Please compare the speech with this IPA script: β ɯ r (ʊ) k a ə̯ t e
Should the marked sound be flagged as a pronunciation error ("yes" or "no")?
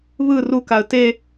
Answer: yes